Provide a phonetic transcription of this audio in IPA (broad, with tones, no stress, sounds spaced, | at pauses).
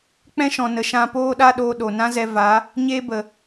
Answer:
k͡p ɛ̃˦ ʃ ɔ̃˨ n ə˨˦ ʃ ã˧ p oː˦ ɗ a˦ ɗ oː˧ ɗ o˨ n ã˦ z ɛ˧ v a˨˦ | ɲ e˦ b ə˨